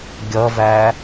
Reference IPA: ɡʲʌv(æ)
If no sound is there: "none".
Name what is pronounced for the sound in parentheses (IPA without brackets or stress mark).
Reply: æ